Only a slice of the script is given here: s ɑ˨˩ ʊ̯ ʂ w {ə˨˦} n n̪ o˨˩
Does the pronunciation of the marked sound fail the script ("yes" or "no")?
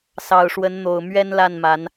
no